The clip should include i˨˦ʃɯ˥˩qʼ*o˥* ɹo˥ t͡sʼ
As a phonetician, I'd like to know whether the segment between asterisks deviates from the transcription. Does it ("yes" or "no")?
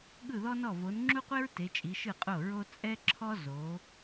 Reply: yes